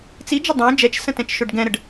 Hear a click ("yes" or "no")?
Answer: no